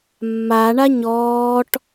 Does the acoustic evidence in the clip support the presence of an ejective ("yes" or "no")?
no